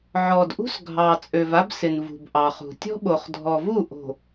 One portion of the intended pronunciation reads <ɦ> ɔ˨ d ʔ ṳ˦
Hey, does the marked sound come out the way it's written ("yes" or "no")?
no